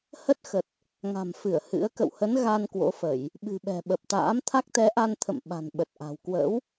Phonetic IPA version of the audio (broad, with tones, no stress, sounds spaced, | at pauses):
h ə˦˥ t̚ x ə˨˩ t̚ | ŋ a̤˨˩ m f ɨ˧˩ ə̯ h ɨ̰˧˥ ə̯ k ə̰˧˨ w h ə˨˦ n ɣ a˧ n k w o̰˧˥ f ə˧˩˨ j | ɓ ɨ̤˨˩ ɓ ɛ̤˨˩ ɓ ə˨˩ p̚ t̪ a̰ː˧˥ m t̪ʰ a˦˥ k̚ t̪ ɛ˨˦ ʔ a˧ n t̪ʰ ə̰˧˨ m ɓ a̤˨˩ n ɓ ə˨˩ t̚ ʔ a̤˨˩ w k w ə̰ː˧˥ w